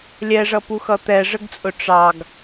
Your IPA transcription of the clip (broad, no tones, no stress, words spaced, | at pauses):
lʲɛʐʌpuxʌ t̪ɛʐəɡt͡sʼʊ ʈ͡ʂɑɡ